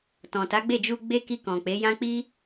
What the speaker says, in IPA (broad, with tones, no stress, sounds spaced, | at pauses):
t ɔ̃˨ t a˨˦ ɡ͡b e˦˨ d͡ʒ u˧ ɡ͡b e˦ k i˧ k ɔ̃˨ k͡p e˨˦ j ã˦ k͡p i˦